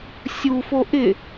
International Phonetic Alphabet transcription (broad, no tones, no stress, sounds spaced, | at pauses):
sʲ u f o ʔ ɪ